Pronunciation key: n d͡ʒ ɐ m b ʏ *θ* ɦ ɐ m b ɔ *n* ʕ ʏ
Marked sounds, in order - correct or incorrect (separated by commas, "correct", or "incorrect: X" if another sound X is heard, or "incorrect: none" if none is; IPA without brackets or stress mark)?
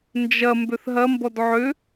correct, incorrect: d